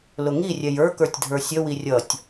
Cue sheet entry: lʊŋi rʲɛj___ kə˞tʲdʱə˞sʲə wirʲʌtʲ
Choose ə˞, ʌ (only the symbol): ə˞